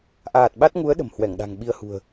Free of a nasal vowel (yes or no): yes